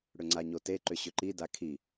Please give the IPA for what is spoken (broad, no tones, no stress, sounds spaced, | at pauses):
ɽ ʏ ŋ͡ǀ a ɲ o t e ǃ ʏ ɕ ʏ ǃ i d a kʰ i